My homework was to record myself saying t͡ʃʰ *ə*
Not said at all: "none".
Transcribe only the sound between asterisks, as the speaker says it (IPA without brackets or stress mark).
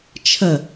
ə